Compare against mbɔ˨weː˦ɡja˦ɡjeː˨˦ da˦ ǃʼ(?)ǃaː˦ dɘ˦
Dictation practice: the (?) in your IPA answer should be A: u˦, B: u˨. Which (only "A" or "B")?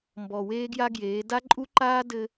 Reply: A